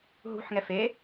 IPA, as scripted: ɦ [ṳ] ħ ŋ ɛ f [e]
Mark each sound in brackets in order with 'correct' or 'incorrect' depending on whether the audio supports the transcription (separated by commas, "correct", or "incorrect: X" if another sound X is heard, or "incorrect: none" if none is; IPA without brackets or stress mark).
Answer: correct, correct